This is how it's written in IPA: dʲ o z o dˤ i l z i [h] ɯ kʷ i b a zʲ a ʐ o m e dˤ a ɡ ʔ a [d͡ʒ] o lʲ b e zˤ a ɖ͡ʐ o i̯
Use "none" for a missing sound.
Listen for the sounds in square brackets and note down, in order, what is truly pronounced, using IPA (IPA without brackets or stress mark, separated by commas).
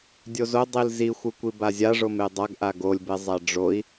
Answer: xʷ, ɡ